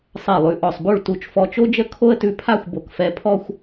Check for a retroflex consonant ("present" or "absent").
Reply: present